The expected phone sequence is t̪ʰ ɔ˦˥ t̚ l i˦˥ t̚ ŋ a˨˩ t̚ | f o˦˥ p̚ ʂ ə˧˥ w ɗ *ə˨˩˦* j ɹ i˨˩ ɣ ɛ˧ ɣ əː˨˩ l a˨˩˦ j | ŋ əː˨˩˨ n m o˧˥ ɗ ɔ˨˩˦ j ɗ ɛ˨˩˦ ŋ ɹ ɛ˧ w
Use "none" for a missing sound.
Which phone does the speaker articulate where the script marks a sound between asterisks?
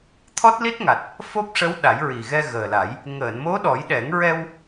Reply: a˨˩˦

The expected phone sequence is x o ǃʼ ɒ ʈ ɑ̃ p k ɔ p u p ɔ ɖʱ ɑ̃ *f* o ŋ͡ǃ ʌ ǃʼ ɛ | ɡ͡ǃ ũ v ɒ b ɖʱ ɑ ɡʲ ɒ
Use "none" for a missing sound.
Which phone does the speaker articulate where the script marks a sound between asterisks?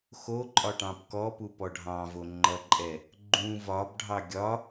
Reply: v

